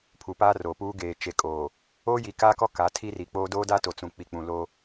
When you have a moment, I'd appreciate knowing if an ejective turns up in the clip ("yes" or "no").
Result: yes